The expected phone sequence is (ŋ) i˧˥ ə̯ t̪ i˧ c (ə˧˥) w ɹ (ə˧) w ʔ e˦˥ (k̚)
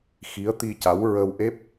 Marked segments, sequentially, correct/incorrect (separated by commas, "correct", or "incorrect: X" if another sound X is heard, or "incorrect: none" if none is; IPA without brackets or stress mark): incorrect: x, incorrect: a˧˥, correct, incorrect: p̚